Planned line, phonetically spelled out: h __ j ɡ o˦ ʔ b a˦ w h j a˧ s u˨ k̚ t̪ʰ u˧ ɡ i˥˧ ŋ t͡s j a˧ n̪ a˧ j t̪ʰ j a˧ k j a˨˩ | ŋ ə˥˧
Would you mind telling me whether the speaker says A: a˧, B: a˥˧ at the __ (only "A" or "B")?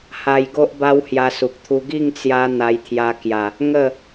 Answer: A